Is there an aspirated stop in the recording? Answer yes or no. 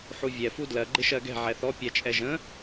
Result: no